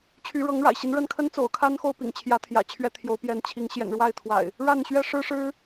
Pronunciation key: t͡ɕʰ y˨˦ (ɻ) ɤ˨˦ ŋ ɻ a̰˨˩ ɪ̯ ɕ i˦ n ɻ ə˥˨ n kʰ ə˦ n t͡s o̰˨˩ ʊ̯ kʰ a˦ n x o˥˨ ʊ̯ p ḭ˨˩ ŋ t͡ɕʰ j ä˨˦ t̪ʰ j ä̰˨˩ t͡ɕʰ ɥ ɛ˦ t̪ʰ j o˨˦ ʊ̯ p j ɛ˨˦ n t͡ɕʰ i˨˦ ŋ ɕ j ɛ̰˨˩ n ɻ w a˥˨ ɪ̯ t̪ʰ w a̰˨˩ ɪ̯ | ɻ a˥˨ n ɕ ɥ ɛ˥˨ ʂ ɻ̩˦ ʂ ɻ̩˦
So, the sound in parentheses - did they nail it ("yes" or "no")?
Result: yes